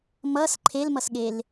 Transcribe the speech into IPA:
m ʌ s ǃʰ e l m ʌ s ɠ e l

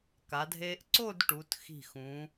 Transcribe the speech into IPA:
k a˩˧ dʱ eː˧ ʔ ǀ o˥˧ d ʈ u˩˧ t x i̤˧˩ x ũ˩˧

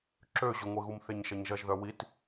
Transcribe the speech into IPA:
ǁ ø ʑ ʊ ŋʷ e ɣ u m θ e ɲ ʃ ɐ ɲ ʒ ɐ ʒ ð œ w i t

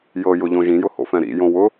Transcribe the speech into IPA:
j ɤ j ʊ ʎ õ ʒ ĩ j ʊ h o̰ f ɛ̃ ɾ ḭ j õ w ʊ

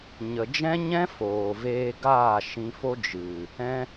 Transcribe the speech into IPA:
ɲ ə˨ d͡ʒ ɛ̃˦ ɲ ɛ̃˦ f oː˨ v eː˧ ɡ aː˦˨ ʃ ĩ˧ f o˦ d͡ʒ ɨ˨ | ɛ̃˦

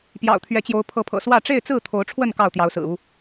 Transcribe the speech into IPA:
p j ɑ̰˨˩ ʊ̯ t̪ʰ ɥ ɛ˨˦ t͡ɕ j o˨˦ ʊ̯ pʰ ɤ˨˦ pʰ ɤ̰˨˩ s w ä˥˨ ʈ͡ʂ e˥˨ ɪ̯ t͡s ɹ̩˥˨ t̪ʰ o˨˦ ʊ̯ ʈ͡ʂʰ w ə˥˨ n k ɑ˥˨ ʊ̯ t̪ j ɑ˨˦ ʊ̯ s ɹ̩˨˩ u˦

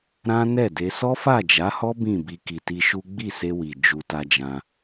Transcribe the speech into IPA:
ɾ ã˦ n ɛ˦˨ d e˧ s ɔ˦ f a˦˨ d͡ʒ a˨˦ h ɔ˦ b ĩ˦˨ b i˧ k i˨ t i˧ ʃ u˦ ɡ͡b i˦˨ s e˧ w i˨ d͡ʒ u˧ t a˧ d͡ʒ ã˧

